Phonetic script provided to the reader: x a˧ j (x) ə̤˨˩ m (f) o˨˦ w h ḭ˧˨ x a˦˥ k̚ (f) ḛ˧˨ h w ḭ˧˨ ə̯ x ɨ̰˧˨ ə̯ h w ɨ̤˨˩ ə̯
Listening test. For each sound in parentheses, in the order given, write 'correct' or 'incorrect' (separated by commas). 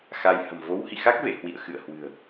incorrect, incorrect, incorrect